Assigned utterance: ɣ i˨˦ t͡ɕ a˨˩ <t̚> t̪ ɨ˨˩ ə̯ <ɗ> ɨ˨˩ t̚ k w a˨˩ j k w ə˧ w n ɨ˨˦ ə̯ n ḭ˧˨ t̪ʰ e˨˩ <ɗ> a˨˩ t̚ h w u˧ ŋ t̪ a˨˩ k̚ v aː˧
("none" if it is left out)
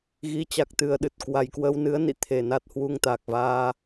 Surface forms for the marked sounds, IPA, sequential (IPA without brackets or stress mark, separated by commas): k̚, ɗ, n